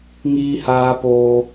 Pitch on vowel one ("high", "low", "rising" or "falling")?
high